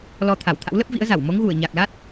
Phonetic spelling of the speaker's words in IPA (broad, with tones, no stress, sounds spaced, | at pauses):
l ɔ˧ t̪ʰ a˧˩ w t̪ʰ a̰˧˥ w l ə˦˥ p̚ v ḭ˧˥ ə̯ z a˧˩ w m o˨˦ ŋ ɣ u˧˩ ə̯ ɲ a˨˩ k̚ l a˦˥ t̚